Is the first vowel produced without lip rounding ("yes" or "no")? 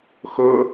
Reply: no